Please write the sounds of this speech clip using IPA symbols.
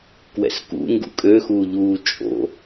k w ɛ̰ s k ṵ ŋ ɡ ṵ kʼ ø x uː ʎ uː t͡ʃʼ o̰

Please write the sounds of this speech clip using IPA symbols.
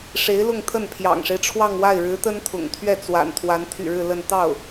ʂ e˧˥ ɪ̯ l ʊ˥˧ ŋ t̪ʰ ə˥˩ n pʰ j ɑ̰˨˩ ŋ ʂ e˦ ɪ̯ ʈ͡ʂʰ w ɑ˥˧ ŋ w a˥˩ ɪ̯ ɻ ɻ̩˧˥ t̪ ə˥ n t̪ʰ ʊ̰˨˩ ŋ t̪ʰ ɥ ɛ˥˩ t͡s w a̰˨˩ n t̪ʰ w a˧˥ n t̪ʰ y̰˨˩ ɻ ɻ̩˥˧ l ə˥˧ n t̪ ɑ˥˩ ʊ̯

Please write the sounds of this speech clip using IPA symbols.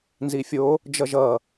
n z i fʲ o | d͡ʒ ʌ ʒ ʌ

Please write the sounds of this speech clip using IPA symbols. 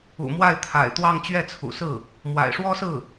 ṵ˨˩ m w a˥˩ ɪ̯ t̪ʰ a̰˨˩ ɪ̯ t̪ w ɑ˥˧ ŋ t͡ɕ ɥ ɛ˥˩ t͡sʰ ṵ˨˩ s ɹ̩˥˩ | m w a̰˨˩ ɪ̯ ʂ w ɔ˥ s ɹ̩˥˩

